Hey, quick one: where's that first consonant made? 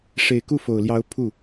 retroflex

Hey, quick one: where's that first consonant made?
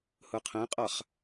throat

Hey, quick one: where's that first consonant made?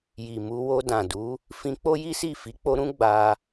palate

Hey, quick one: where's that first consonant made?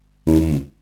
velum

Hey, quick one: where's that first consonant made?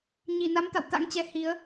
palate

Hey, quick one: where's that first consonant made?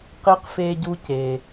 uvula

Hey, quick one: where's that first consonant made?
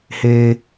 throat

